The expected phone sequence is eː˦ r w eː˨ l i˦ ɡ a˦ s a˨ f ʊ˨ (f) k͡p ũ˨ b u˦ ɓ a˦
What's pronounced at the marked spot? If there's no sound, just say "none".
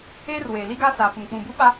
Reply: m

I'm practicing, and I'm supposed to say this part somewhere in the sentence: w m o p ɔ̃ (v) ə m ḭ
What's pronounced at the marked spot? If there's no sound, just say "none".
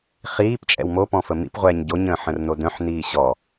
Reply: f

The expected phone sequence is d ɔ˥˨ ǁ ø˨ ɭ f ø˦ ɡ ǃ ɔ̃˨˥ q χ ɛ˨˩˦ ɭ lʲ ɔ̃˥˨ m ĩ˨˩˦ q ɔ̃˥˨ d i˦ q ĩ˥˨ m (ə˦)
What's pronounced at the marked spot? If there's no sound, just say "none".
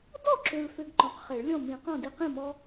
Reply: ɔ˦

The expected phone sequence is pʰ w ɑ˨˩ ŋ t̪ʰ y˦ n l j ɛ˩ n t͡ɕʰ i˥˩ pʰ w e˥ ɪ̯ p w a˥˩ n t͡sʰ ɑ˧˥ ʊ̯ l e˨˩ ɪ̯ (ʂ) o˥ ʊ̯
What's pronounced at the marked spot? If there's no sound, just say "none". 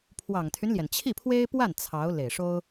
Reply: ʂ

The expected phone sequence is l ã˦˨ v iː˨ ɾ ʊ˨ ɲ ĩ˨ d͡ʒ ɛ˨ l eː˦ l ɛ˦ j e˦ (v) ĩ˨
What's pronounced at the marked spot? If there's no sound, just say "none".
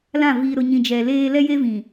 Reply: v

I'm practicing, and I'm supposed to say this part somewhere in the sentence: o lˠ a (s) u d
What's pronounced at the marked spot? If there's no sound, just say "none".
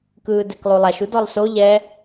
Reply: ʃ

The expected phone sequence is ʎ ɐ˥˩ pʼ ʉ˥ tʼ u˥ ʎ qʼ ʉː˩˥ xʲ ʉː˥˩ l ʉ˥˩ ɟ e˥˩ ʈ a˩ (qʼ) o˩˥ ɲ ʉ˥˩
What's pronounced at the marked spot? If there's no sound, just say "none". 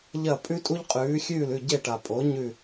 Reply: pʼ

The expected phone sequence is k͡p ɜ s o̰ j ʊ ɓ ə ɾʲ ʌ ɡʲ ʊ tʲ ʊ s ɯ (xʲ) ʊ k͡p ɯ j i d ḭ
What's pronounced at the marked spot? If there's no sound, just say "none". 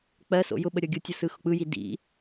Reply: x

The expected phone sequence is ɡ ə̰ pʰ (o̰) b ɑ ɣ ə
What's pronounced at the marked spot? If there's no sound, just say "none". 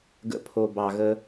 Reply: o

